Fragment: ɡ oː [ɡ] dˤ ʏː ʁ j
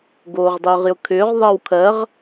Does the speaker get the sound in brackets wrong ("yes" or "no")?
yes